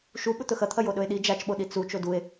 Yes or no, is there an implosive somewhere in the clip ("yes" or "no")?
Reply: yes